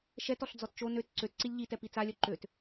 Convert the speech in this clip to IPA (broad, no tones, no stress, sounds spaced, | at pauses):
ʃ ɛ t ɔ ɬ d͡z ɔ t t͡ʃ o n ø t ǀ ø t ǀ i lʲ ʎ i t ɛ p i t͡s a lʲ œ ǃ ø t